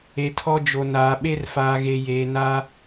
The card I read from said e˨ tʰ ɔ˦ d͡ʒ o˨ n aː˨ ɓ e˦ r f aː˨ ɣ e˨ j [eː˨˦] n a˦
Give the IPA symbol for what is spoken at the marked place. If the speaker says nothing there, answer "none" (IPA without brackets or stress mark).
eː˨